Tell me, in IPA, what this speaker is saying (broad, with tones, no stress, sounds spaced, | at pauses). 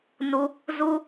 n u˧ | z u˧